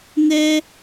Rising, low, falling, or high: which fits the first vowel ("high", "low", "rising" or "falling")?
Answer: high